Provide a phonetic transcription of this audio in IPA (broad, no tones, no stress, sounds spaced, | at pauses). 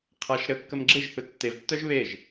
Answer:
qʰ a ʃ ɾ ə kː ə m ɡ͡ǁ e ʒ θ ɵ tː e v tː œ ʒ β e ʒ